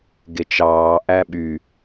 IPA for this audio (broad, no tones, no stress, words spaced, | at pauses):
ɡet͡ʃɑː ʔæɓy